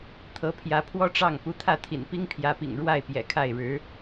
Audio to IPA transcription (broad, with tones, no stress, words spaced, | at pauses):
t̪ʰɤ˧˥pʰjä˧˥pʰwɔ˥ʈ͡ʂɑ˥˩ŋ pu˧˥t̪ʰä˥˩t̪ʰḭ˨˩npi˥ŋ pʰjä˧˥pḭ˨˩ŋɻwa˥˩ɪ̯ pjɛ̰˨˩kʰa˥˩ɪ̯ɻɻ̩˧˥